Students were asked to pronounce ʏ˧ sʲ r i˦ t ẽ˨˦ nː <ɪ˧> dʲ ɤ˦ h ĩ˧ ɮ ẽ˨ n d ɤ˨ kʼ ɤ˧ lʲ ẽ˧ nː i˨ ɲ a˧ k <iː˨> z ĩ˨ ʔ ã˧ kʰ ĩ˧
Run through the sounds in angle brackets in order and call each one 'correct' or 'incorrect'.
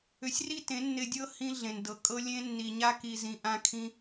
correct, incorrect

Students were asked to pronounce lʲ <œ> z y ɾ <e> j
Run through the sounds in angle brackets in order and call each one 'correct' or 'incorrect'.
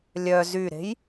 correct, incorrect

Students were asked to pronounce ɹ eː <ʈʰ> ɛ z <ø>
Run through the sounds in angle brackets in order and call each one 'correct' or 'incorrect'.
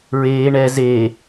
incorrect, incorrect

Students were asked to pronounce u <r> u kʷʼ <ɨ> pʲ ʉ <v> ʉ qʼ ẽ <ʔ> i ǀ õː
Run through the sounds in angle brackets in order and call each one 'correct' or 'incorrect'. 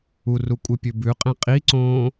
correct, correct, incorrect, incorrect

